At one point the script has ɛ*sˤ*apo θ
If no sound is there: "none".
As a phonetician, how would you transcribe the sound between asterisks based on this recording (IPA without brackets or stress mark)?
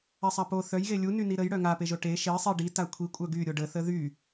sˤ